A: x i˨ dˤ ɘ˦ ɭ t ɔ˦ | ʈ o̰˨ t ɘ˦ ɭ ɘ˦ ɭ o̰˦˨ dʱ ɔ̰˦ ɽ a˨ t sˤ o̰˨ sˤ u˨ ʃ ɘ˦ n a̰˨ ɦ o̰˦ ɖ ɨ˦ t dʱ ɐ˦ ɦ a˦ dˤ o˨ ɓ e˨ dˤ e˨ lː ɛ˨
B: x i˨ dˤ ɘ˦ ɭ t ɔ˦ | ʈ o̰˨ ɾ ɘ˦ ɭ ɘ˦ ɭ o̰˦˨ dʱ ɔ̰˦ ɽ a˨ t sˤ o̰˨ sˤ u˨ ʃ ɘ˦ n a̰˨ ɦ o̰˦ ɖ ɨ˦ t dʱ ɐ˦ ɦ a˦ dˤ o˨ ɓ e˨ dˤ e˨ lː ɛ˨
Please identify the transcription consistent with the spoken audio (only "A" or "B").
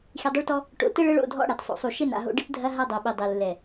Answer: A